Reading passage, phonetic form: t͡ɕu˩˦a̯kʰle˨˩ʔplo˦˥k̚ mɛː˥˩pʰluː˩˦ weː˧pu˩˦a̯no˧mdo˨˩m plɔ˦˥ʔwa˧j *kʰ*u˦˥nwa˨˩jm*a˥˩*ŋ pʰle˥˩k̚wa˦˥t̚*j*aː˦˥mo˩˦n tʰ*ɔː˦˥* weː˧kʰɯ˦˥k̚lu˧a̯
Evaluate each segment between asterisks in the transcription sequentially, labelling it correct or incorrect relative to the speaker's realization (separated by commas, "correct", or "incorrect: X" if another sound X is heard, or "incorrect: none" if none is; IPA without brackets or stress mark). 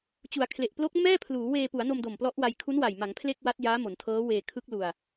correct, incorrect: a˩˦, correct, incorrect: ɤː˦˥